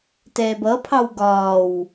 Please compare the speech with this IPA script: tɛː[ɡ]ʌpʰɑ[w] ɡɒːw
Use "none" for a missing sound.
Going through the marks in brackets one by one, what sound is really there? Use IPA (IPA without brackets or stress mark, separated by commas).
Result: b, w